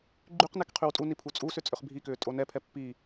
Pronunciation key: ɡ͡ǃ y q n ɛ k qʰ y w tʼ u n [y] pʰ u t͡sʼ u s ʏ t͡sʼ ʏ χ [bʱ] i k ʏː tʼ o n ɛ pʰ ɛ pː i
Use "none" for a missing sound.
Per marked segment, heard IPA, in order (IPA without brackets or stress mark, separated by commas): i, bʱ